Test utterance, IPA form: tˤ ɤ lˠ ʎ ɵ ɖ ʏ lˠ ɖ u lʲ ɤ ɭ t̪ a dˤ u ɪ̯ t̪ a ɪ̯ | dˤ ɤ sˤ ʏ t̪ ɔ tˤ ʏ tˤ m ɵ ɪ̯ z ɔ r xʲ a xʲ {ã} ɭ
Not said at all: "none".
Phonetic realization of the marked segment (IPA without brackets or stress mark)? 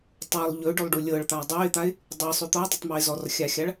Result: a